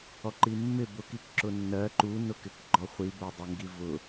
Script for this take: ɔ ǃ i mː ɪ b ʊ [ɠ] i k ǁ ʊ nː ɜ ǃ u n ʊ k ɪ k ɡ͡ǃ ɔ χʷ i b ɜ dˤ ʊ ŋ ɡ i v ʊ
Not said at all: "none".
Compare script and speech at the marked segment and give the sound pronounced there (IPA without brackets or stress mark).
k